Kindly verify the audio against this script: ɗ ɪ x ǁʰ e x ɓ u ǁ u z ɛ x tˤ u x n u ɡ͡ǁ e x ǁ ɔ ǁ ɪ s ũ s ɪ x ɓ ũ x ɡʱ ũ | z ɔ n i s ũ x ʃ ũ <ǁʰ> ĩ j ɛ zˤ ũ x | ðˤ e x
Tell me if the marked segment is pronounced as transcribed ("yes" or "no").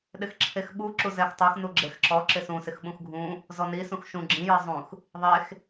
no